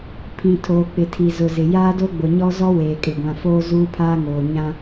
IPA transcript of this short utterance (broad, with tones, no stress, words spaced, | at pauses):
pʰĩ˨ tʰoː˨k͡pɪ˨tʰi˨ zʊ˨ zɪ˨ jaː˦do˦ ɡ͡bʊ˨ɲɔ˦zɔ˦ weː˨kʼɪ˨ɡʷã˨foː˦ zuː˦pʰaː˦ŋoː˨ ɲã˦